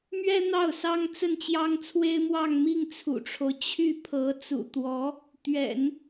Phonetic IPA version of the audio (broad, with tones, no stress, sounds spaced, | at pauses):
m ɥ ɛ˥ n̪ ɑ˥˩ ʊ̯ s ɑ˥ ŋ t͡s ə˥˩ n t͡ɕ j ɑ˥ ŋ t͡sʰ w e˥ ɪ̯ m w ɑ˥˧ ŋ m i˥˩ ŋ t͡sʰ ṵ˨˩ ʈ͡ʂʰ o˦ ʊ̯ t͡ɕʰ y˥˩ pʰ ɤ˧˥ t͡s ṵ˨˩ t̪ w ɔ˧˥ | t̪ ɥ ɛ̰˨˩˦ n